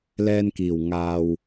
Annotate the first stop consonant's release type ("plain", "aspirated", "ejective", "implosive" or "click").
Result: plain